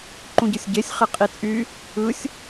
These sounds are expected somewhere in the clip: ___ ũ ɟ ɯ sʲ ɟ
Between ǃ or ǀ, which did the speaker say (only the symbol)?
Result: ǃ